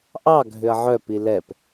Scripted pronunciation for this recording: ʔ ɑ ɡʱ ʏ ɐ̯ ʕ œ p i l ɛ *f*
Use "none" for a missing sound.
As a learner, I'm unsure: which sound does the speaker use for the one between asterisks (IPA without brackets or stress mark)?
p